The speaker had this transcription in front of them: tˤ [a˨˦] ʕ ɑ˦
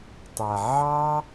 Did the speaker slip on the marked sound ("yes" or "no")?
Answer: yes